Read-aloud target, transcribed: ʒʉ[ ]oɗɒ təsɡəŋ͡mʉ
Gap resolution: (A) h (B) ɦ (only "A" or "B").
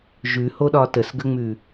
A